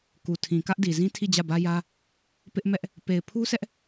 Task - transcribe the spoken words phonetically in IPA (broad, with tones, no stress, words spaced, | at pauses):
ku˨tʰĩ˨ kä˦ʔdi˨ zĩ˦tʰi˦˨d͡ʑä˦˨bä˦ jä˦ | pɪ˦ʔ mɛ˦ʔ | pe˨ɪ̯pʰu˦sɛ˦ʔ